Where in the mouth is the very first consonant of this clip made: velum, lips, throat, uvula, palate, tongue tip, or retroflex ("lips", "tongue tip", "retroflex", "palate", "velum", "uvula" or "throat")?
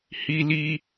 throat